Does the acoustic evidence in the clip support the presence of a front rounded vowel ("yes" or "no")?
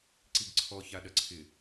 no